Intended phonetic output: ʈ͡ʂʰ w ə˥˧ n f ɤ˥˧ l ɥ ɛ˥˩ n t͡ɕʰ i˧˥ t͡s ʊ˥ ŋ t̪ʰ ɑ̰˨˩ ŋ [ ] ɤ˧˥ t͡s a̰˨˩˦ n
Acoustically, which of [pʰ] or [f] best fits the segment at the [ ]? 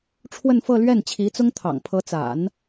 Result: pʰ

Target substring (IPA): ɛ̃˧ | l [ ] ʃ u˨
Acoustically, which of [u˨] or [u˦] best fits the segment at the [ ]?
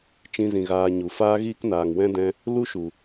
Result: u˦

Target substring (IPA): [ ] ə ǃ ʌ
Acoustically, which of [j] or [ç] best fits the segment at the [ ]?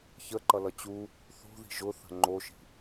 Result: ç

